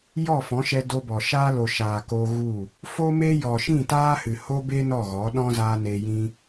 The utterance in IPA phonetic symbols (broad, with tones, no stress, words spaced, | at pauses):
jɔ˦˨fɔ̃˨˦ʃɛ˧ do˧bɔ˨ʃaː˦ lo˨ʃaː˨ko˧ ɣu˦˨ | fo˦me˦ jɔ˨ʃĩ˦˨taː˦hɨ˨ ho˦be˦ nɔ˦˨ɣɔ˨˦ ɗɔ̃˦zaː˧ neː˧jĩ˦